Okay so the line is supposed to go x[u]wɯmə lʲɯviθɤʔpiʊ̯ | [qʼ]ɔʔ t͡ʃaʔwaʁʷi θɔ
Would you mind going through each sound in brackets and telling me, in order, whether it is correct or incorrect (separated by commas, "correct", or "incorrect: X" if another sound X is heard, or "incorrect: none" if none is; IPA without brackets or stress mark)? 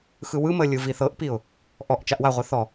incorrect: ɯ, incorrect: ʔ